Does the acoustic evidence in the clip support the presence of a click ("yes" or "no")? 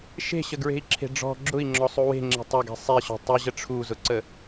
yes